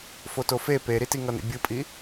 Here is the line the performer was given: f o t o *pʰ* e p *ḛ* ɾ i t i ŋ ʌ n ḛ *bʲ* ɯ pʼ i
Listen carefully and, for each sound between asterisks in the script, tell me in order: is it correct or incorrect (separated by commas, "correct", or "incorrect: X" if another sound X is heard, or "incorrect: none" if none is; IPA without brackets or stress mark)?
incorrect: f, incorrect: e, correct